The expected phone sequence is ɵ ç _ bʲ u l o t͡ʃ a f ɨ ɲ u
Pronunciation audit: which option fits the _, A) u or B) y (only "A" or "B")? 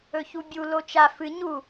A